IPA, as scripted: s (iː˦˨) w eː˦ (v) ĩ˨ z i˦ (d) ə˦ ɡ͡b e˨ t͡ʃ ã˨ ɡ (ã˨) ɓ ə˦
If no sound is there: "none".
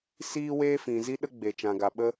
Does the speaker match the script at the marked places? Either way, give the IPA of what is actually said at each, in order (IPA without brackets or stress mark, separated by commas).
iː˦, f, ɗ, a˨